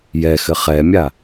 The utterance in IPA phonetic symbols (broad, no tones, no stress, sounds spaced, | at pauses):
j ɛ x ɘ χ ɛ mʲ a